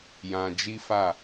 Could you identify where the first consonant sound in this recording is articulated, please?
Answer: palatal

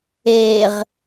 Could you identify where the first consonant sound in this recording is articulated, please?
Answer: uvular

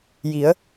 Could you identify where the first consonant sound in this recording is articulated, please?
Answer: palatal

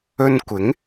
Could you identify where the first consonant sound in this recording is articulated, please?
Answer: alveolar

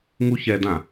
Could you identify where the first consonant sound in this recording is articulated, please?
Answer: velar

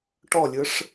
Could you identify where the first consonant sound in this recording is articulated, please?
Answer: retroflex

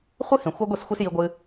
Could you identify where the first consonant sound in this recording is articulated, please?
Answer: uvular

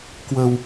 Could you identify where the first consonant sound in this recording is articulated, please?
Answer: velar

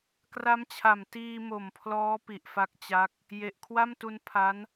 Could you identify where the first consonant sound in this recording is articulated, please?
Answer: velar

